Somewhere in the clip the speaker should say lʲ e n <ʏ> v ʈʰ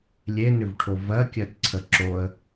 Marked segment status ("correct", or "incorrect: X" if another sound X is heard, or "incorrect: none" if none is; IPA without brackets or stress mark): correct